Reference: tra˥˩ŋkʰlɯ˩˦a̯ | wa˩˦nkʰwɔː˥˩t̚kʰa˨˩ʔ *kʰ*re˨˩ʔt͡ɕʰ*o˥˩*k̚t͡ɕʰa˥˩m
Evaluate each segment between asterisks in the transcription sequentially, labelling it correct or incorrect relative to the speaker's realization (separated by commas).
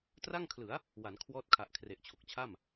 correct, incorrect